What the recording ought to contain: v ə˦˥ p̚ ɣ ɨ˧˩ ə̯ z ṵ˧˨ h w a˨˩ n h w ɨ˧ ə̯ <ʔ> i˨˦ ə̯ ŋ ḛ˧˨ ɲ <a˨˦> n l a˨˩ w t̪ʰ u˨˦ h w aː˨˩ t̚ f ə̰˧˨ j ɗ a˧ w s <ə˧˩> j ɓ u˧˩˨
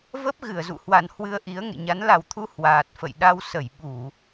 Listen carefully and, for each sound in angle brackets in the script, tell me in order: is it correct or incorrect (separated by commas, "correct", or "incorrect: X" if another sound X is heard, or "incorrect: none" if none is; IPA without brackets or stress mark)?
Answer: correct, correct, correct